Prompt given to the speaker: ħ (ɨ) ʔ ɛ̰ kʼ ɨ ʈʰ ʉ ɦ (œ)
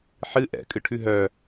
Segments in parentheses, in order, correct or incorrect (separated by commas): correct, correct